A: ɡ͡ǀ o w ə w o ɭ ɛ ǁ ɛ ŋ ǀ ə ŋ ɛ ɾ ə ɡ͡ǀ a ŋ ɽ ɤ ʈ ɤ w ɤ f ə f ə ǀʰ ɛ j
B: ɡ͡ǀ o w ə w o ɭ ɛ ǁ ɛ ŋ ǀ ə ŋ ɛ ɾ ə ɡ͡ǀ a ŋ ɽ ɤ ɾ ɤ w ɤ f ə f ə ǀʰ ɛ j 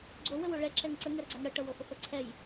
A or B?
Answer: A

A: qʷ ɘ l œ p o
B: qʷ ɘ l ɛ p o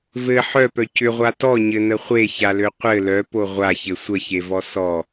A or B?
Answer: A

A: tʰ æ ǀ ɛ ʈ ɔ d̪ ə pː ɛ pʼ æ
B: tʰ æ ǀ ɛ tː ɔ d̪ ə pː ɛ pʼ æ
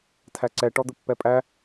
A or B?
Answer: A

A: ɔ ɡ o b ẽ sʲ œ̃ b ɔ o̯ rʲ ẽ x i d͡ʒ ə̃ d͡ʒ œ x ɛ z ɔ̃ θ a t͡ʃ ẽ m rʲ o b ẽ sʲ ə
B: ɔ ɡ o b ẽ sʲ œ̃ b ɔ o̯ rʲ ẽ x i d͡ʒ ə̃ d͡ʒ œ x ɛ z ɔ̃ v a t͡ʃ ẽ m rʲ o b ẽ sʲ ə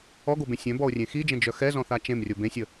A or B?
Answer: A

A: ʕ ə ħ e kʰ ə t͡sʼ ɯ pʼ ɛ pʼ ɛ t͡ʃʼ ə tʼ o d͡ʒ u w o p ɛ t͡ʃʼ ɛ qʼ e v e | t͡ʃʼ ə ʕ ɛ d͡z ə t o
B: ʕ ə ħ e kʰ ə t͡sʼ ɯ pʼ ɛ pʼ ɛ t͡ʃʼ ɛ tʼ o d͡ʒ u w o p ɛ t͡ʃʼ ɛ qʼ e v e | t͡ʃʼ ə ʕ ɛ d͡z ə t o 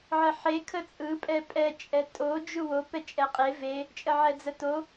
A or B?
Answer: B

